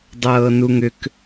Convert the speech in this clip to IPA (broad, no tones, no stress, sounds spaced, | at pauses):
dˤ ɤː n u ŋ ʏ k